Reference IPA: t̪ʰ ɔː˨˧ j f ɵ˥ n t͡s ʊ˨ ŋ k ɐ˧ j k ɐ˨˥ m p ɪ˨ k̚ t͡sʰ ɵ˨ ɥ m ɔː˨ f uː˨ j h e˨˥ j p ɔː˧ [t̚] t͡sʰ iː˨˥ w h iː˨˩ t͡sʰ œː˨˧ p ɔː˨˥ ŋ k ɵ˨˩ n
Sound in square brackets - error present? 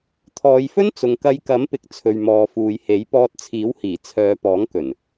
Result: no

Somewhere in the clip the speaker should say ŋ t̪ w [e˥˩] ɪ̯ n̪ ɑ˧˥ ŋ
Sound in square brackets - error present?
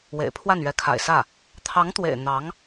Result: yes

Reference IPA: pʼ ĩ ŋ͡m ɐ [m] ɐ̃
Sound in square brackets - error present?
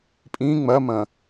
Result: no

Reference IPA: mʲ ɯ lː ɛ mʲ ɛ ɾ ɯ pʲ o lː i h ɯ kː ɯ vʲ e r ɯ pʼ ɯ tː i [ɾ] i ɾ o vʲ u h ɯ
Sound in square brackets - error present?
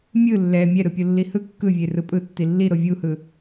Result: yes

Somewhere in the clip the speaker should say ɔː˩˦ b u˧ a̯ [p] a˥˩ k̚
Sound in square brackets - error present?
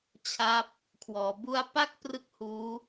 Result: no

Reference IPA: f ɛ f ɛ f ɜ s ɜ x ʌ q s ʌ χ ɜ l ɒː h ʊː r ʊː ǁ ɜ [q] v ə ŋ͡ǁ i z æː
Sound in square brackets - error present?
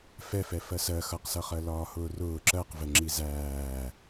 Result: no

